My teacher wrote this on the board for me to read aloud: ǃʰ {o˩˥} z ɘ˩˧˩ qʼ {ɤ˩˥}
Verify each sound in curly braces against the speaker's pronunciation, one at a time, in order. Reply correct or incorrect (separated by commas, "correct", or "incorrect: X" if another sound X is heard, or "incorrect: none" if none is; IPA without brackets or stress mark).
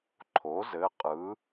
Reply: correct, incorrect: ɯ˩˥